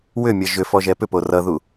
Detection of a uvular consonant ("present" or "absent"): absent